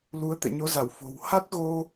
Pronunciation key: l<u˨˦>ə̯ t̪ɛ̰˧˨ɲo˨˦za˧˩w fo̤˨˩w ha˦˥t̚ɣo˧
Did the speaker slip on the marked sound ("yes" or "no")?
no